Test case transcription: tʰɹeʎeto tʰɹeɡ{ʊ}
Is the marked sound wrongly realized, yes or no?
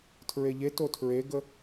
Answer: yes